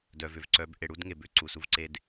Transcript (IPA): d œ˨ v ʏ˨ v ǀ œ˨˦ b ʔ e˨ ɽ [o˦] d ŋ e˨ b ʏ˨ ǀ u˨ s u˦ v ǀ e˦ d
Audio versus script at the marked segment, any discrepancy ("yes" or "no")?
yes